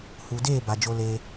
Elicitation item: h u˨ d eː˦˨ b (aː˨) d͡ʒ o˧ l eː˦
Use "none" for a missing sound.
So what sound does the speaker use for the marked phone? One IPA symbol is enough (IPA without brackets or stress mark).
a˨